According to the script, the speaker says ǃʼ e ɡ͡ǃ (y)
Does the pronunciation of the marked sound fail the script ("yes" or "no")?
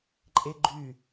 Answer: no